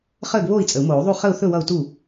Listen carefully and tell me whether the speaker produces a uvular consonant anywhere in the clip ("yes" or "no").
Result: yes